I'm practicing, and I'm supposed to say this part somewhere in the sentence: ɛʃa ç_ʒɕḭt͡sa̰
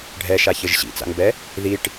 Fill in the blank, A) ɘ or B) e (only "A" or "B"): A